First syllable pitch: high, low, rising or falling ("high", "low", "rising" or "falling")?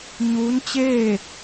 rising